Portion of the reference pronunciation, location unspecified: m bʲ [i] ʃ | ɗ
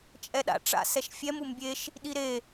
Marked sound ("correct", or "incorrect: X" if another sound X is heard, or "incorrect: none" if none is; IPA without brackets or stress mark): incorrect: e